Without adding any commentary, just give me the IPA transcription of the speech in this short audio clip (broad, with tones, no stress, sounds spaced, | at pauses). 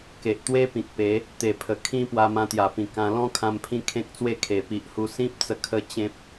k e˨ ʔ t̪ w e˦ p ĩ˨ k̚ p e˨˦ | t̪ e˨˩ pʰ ə˨˩ kʰ ĩ˧ p w a˧ m ã˧ t̪ j a˨˩ p ĩ˨˩ k ã˧ l ɔ̃˦ kʰ ã˧ m pʰ ĩ˧ kʰ ẽ˦ k̚ t͡s w e˥˧ kʰ e˨˩ p i˨ ʔ h u˧ s ĩ˦ p̚ t͡s ə˧ kʰ ə˧ t͡ɕ ẽ˦ p̚